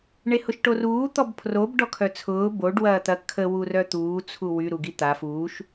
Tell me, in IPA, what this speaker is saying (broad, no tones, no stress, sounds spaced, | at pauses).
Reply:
ɳ e h ʊ ʃ ʈ o r uː t̪ ɔ b pʰ r o b ɖ ɔ kʰ œ t͡sʰ ʊː b o ɖ w ɐː t̪ ɐ kʰ ə w u r œ t̪ uː t͡sʰ u w y ɾ u ɡ i t̪ a f uː ʃ